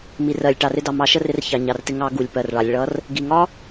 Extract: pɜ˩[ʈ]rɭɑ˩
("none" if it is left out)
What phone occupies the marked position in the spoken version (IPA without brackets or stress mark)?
none